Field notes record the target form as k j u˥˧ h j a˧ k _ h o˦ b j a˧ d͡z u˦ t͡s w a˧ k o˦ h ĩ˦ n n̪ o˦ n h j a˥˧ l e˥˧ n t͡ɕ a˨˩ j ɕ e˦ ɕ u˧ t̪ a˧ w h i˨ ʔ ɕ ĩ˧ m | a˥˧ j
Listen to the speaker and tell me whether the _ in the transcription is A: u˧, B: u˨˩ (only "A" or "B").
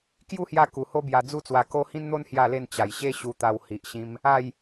B